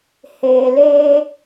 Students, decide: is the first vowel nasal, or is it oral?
oral